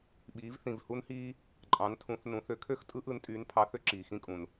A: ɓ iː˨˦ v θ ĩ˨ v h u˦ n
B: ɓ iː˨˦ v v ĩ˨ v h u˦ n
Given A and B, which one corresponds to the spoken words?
A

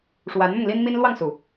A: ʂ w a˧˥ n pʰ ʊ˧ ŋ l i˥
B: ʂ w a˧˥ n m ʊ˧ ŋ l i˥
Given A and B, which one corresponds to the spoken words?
B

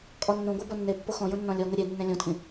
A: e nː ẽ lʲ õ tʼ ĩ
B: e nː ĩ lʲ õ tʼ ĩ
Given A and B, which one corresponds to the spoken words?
A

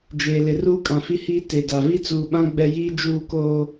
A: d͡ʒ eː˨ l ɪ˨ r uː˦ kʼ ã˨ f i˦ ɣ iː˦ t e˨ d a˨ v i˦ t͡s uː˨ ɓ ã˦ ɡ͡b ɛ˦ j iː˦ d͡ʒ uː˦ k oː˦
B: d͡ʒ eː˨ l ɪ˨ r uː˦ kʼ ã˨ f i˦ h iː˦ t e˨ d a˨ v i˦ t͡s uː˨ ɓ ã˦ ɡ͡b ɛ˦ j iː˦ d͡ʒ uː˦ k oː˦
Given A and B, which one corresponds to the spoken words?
B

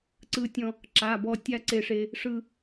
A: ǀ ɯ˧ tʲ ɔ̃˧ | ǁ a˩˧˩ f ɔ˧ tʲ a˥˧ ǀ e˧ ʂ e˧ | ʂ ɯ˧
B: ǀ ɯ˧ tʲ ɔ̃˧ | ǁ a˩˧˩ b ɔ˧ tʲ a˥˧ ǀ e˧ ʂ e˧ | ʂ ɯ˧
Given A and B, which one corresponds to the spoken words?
B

